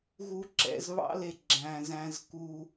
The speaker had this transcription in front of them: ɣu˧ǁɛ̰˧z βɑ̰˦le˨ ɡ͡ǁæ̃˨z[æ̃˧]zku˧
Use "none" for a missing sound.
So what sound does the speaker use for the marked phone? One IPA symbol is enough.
æ̃˧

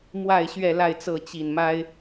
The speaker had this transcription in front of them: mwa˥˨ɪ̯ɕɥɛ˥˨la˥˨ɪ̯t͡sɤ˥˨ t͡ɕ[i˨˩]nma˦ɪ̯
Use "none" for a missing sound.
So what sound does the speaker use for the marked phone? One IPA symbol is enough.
i˨˩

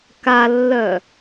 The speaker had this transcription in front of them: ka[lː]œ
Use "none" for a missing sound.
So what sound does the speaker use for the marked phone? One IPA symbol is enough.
lː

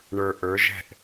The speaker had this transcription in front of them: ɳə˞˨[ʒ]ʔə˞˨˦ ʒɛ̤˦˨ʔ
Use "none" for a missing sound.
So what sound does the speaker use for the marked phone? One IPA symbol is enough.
none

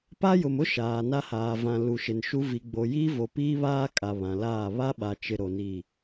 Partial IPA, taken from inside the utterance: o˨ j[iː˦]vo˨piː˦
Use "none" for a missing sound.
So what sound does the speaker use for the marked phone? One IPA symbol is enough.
iː˦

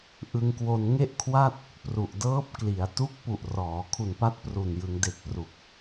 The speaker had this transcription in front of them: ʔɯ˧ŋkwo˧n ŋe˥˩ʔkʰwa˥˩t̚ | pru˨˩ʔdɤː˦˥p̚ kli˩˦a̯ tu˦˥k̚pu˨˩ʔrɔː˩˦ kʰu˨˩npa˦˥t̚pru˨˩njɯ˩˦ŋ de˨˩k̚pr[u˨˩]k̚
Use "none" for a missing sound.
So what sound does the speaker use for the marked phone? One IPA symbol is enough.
u˨˩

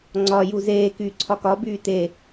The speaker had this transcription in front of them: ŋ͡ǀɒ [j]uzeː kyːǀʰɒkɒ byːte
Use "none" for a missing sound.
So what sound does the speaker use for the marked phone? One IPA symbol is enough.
j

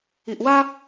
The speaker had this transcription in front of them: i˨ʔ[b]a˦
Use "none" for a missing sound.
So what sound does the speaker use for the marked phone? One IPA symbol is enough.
w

